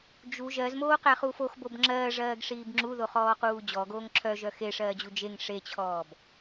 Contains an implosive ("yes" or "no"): no